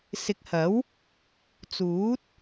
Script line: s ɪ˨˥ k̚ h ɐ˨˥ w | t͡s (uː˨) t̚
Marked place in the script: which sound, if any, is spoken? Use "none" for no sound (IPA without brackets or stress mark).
uː˨˥